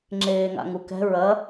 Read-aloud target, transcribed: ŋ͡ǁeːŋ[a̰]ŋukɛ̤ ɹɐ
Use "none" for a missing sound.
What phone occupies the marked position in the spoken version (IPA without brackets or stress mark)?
a̰